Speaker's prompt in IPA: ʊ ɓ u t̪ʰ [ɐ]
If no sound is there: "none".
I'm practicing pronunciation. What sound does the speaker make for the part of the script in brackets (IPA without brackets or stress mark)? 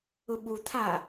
a